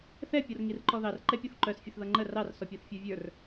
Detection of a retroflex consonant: absent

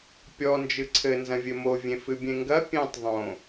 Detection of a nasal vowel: present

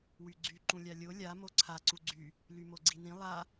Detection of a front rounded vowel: present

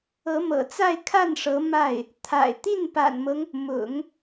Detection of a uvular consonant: absent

